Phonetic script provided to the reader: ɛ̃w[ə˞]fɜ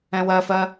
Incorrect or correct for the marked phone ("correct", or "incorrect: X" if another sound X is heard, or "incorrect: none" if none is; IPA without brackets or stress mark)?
incorrect: ɜ